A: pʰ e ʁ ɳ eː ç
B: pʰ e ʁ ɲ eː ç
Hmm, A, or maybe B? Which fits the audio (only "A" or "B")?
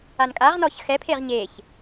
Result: B